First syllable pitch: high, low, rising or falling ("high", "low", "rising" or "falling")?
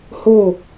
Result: falling